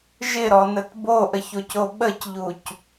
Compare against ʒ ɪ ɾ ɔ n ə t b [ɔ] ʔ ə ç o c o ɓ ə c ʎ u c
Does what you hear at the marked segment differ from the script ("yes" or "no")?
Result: yes